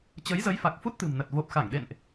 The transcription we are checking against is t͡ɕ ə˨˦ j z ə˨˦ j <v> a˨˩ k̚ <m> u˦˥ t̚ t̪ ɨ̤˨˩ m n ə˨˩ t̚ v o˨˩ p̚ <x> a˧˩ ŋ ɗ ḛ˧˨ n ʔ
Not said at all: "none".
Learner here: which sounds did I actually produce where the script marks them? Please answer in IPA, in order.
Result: f, f, x

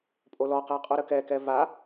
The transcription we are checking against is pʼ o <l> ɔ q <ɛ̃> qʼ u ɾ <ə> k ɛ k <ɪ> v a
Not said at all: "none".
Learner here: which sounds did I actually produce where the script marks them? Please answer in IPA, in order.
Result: l, ɛ, ə, ɛ

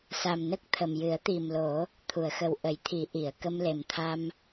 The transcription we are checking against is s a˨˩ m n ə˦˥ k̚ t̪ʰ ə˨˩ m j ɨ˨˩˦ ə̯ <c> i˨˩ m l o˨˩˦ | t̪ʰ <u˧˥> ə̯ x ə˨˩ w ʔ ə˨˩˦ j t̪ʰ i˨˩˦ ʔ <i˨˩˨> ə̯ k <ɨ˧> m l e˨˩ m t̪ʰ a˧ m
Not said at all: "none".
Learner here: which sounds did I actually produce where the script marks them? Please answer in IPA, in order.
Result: t̪, u˨˩˨, i˨˩˨, ə˧

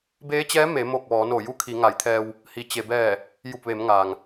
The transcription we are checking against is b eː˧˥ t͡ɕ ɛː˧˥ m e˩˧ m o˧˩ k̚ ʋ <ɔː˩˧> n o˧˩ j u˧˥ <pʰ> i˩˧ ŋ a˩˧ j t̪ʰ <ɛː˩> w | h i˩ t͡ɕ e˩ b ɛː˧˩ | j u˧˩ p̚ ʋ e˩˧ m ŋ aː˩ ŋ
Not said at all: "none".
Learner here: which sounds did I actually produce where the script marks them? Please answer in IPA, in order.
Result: ɔː˩˧, kʰ, ɛː˧

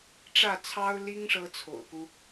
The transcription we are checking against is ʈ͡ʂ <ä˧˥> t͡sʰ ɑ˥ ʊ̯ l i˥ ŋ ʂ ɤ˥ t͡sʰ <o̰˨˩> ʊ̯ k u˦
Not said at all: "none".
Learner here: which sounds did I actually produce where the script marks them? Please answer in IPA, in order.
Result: ä˥˩, o̰˨˩

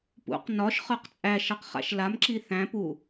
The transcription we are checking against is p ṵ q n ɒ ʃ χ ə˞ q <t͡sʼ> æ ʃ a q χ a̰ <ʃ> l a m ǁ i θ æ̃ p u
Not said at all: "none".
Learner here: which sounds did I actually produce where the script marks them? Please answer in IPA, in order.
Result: t͡sʼ, ʃ

